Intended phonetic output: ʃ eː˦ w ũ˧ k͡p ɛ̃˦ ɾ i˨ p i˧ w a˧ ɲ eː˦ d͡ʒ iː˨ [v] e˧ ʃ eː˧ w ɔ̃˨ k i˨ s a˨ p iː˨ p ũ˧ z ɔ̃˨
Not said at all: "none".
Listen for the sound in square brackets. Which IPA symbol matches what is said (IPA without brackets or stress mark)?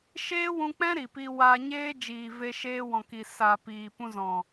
v